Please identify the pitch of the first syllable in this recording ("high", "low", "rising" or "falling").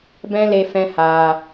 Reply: high